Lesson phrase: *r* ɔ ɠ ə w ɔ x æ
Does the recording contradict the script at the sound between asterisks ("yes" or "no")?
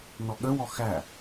yes